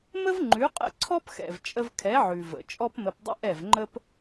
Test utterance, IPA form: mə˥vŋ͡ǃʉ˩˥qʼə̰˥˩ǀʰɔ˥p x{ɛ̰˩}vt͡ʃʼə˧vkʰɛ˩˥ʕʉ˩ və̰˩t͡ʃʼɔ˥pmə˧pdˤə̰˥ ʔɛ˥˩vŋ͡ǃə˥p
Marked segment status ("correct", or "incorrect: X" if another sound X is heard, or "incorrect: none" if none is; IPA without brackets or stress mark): correct